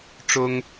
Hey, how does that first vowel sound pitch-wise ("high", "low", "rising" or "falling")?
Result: high